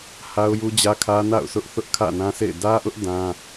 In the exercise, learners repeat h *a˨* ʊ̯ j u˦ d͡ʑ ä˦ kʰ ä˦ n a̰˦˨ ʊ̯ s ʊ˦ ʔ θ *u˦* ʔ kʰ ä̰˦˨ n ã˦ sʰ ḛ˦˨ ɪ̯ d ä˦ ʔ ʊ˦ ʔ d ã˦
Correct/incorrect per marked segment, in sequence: incorrect: a˦, incorrect: ʊ˦

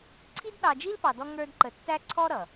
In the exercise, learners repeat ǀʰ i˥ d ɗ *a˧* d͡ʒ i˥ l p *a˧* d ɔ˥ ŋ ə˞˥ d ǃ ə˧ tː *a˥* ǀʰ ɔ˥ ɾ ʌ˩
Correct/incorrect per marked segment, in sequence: incorrect: ɑ˧, incorrect: ɑ˧, incorrect: æ˥

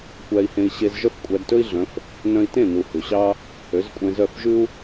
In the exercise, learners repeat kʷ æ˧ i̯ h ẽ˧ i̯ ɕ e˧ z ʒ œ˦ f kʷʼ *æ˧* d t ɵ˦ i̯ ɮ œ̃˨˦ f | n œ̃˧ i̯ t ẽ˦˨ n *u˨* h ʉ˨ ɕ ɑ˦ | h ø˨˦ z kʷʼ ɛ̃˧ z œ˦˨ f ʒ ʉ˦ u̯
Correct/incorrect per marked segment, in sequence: correct, correct

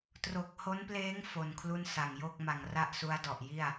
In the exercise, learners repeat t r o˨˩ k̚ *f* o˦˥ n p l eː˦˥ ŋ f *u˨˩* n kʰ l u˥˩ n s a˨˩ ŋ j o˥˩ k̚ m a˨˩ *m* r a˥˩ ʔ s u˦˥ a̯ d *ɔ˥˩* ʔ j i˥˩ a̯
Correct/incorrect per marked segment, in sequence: incorrect: h, incorrect: o˨˩, incorrect: ŋ, incorrect: ɔ˨˩

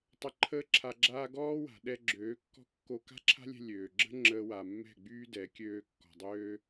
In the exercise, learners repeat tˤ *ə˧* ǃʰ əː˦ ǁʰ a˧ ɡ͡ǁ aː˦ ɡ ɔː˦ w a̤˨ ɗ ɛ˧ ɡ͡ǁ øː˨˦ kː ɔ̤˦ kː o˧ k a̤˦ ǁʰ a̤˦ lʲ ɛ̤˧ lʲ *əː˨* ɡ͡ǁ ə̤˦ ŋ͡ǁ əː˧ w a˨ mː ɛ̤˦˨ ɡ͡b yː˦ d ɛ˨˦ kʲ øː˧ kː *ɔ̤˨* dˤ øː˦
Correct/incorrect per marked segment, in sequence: correct, incorrect: øː˨, correct

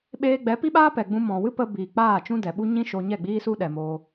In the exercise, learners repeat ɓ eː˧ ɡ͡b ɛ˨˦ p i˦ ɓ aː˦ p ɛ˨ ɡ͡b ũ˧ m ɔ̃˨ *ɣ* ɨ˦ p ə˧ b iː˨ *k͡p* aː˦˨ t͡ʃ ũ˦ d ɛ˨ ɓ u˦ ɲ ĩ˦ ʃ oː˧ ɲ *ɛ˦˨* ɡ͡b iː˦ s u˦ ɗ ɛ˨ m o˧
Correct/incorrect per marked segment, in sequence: incorrect: w, correct, correct

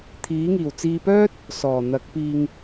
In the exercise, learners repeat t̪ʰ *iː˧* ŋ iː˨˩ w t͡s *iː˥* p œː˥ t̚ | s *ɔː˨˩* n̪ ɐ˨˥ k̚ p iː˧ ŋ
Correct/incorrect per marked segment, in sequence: incorrect: iː˨˥, incorrect: iː˧, correct

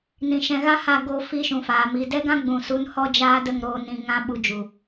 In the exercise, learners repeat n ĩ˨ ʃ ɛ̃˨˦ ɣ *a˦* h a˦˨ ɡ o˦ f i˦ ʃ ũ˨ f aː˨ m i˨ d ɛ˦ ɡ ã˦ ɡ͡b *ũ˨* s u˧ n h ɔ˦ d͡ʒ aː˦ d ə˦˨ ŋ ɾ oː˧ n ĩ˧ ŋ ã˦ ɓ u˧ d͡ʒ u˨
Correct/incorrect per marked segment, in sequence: correct, correct

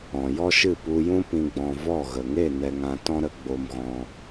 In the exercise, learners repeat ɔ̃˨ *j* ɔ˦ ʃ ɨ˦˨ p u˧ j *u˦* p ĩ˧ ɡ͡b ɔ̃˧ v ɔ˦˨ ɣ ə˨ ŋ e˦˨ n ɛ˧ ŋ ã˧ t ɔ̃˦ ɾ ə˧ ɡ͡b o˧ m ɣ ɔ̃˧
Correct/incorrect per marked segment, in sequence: correct, incorrect: ũ˦

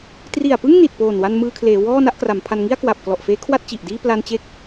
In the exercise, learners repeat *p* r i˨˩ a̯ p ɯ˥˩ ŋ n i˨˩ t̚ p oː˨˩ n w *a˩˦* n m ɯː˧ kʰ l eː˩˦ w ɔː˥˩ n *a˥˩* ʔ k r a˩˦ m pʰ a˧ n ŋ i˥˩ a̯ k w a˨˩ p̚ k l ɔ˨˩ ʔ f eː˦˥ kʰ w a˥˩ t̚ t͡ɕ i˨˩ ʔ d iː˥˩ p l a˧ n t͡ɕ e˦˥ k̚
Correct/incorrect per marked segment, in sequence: incorrect: t, incorrect: a˧, correct

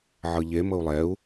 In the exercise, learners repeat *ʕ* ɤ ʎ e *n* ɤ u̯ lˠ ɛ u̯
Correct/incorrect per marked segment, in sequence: correct, incorrect: m

